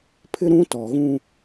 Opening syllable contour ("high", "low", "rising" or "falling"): high